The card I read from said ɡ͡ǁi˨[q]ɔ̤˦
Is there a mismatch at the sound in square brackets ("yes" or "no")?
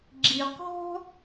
no